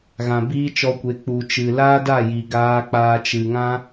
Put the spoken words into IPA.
ɣ ã˨ b iː˦ t͡ʃ ɔ˧ kʷ e˨˦ k͡p u˧ t͡ʃ ɨ˧ l aː˦ d a˦˨ j i˨ ɡ aː˧ k͡p aː˧ t͡ʃ ɨ˨ ŋ ã˦

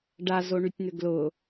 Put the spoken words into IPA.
ɖ a z o ɳ y tʲ n̪ ʏ ɡ l ʊ

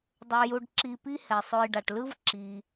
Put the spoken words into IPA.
dˤ o˨ j u˨ ɖ ǁ i˨ p i˦ h ɛ˩ sˤ o˨ j ɖ a˩ ʈ l ɯ˦ v ǁ i˩

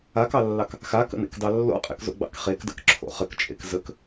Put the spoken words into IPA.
a k ɑ lː ɑ k | x a k ə̰ n ḛ k d ɑ lː o̰ qʼ ḛ k z o̰ ɡ͡b ɑ̰ k χ e k d ə̰ k ǁʰ o̰ χ ə k t͡ʃʼ ḛ k z ə k

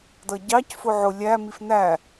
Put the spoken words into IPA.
d ʌ ɟ ɑ c f ʊ ʕ ʊ lʲ æ m i f n æ

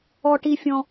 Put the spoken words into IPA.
ɔ˩ ʈ i˩ fʲ ɔ̃˩

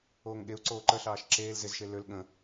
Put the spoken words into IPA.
oː ŋ ɠ e u̯ ǀ oː ǃ ə ɬ ɑː ʃ ǁ eː l z ɪ z ʃ e l ø l ɠ ə̃

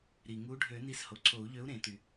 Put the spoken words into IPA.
ɾ i˩ ŋ u˨˥ ɖʱ ø˨˩˦ n i˨˥ s h o˩ ǀʰ o˨˩˦ u̯ ʎ ø˨˥ u̯ ɾ ẽ˨˩˦ t y˩

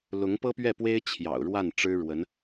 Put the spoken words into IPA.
l ʊ˧˥ ŋ p ɤ˥ p ɥ ɛ˥˩ p w e˥ ɪ̯ t͡ɕʰ j ɑ̰˨˩ ʊ̯ ɻ w a˥˩ n ʈ͡ʂ ɻ̩˥ ɻ w ə˧˥ n

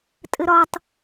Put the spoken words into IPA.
tʼ ɘ ɾ ɒ tˤ

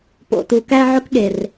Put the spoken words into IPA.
p o̰˨ t u˨ k æ˦ ʕ ʊ˦ k ɠ e˨ r

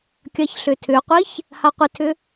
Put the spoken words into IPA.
kʲ ɐ ç ɬ ʏ tʰ ʏ qʷ i ç | h a qʷ ɪ tʰ ʏ

